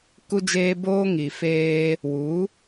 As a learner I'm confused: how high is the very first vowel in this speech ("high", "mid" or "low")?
high